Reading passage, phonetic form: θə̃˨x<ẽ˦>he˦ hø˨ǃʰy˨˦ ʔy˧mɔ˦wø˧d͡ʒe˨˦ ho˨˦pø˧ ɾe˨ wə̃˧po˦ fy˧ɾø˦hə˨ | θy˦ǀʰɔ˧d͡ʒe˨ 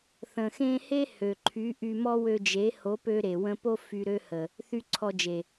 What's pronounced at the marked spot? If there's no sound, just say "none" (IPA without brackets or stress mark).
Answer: ẽ˧